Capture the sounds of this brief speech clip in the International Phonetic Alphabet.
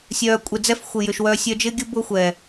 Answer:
sʲœː˧kʷʼe˧d͡zɛ˦f xʷɪ˧jʏ˧ʃwœ˦ sʲœ˧d͡ʒɪː˦ɡʲʊ˦ bʊ˦xʷɛ˨

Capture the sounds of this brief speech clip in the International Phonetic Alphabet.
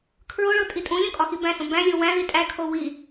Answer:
kʰɹoɭo tʼitʼũlʲõ kʼɒxibæ̃sõ bæ̃lʲo wæ̃ ðitʼækʰo wi

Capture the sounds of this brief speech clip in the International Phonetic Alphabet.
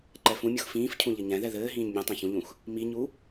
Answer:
ǃɛfũmʲux fĩːfcʰũ ʎɘɲɛ̃ðɛ ðɘːɦĩːɲ mʲũtˤẽ çũʎũx | miɲu

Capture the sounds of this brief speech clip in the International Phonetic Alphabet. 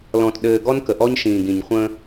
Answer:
lɔ̃˨tɗɘː˨ ɡɔ˦n kə˨ʔɔ˦ɲʃĩː˨ɡĩ˨ɲ χʷə̃ː˦

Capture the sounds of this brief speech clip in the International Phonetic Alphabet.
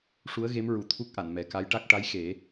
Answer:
ʂu˧˥ə̯ɣe˧˥mɹu˨˩t̪ʰu˦˥k̚ ʔa˨˩˨nmɛ˨˩˦ka˧˥jʈa˦˥k̚ ʈa˧˥jxe˨˩˦

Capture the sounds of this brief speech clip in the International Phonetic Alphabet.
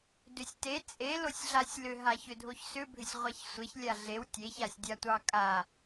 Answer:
dʏsʲte t͡sʼe losʲɮasʲlʏ ɦaçʏdʱoçsʏ bʱʏsʲʁʷaçsʷeç lʲaɮew tʲeç asʲdʲatʷɑkʼa

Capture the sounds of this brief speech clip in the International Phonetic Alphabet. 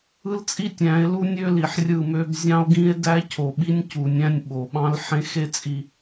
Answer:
ɯ˦lt͡sʼi˦tʲ æ̃˨˦e̯lu˦ nʲø˦li˨ħrʲɯ˦˨mø˦b zʲɑ̃˦o̯ɡĩ˦e̯ dæ˦cʰo˨ ɓi˦nʲ cu˨nʲæ̃˦nʲ ɓo˨ɓɑ̃˦l ħẽ˦xe˦t͡sʼi˨

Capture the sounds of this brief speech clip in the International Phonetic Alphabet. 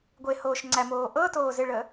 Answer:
ɡʷehoːʃŋ͡ǀæmoː ʔɤtoː zɪɭə

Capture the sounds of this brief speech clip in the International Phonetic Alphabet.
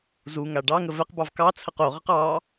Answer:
zuŋa ɖɑŋə vɛqbɑv kɑt͡sʰəq oʁəq ɑ

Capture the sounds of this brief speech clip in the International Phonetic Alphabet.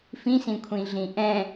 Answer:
fĩsĩkʷʰĩɮĩ ʔɛ̃

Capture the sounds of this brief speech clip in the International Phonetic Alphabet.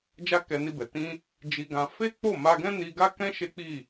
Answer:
d͡ʒa˦kɛ˧ni˧bɛ˨ tĩ˧ | d͡ʒi˧ɡã˧ fe˦k͡po˦˨ ma˧ɡɛ̃˦ ni˧ɡa˦kɛ̃˦ ʃe˦k͡pi˦˨

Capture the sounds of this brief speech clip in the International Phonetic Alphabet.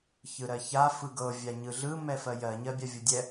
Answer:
çɯɾɜça fɯɡɤ vʲaɲɯɮɯ mɛfɜjɜ ɲɜbʲavʲɤdʲɛ

